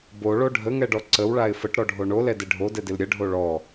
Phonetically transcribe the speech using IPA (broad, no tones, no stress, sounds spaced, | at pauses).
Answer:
b o ɭ o ɖʱ ə ŋ ɛ ɖ ɔ ǀ ə w ɭ a ɪ̯ f ə ʈ ɾ ɔ ɖʱ o ɳ o l ɛ d ɪ ɖʱ o d ɛ d ɪ l ɾʲ ə ɖʱ o ɭ ɔ